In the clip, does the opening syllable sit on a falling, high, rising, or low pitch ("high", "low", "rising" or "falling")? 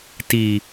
low